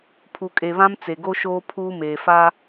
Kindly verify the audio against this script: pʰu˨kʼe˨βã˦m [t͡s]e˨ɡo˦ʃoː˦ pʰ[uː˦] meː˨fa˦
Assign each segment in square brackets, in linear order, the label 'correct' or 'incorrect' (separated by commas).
correct, correct